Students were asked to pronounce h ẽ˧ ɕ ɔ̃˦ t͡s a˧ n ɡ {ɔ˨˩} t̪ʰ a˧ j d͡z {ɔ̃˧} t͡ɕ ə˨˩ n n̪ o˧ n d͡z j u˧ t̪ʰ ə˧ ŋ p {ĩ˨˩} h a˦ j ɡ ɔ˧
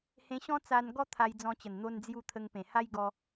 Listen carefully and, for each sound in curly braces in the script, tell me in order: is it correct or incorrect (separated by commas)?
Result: incorrect, correct, incorrect